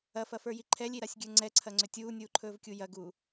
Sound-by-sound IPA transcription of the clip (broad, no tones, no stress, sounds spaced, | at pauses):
ɐ f ɐ f ə˞ j i ǃʰ ɛ lʲ i ɾ a sʲ ɡʲ ə˞ ŋ͡ǀ ɛ ǀʰ ɐ ŋ͡ǀ ʏ tʲ uː nʲ uː ǃʰ ɵː v kʲ u j ɐ ɡ uː